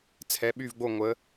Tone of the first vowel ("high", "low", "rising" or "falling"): rising